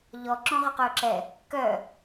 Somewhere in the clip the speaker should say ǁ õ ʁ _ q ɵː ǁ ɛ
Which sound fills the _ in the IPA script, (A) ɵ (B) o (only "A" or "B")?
A